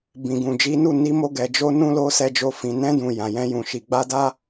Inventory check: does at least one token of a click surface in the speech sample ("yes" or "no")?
no